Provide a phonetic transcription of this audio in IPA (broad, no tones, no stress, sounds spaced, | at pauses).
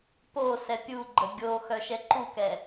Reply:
p o s ɛ pʲ u ɡ͡ǃ ə ɡʲ o x œ ʃ ɛ ǃ u k ɛ